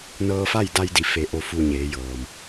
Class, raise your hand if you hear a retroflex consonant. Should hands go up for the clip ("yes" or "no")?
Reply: no